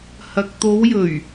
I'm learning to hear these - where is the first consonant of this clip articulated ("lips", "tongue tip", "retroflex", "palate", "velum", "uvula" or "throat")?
throat